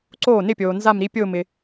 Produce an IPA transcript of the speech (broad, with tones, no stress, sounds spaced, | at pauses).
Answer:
ǀ oː˥˩ n ɪ˥˧ pʲ oː˨ n z a˥˧ m ɾ i˦˥ pʲ ʊː˥˧ m ɪ˨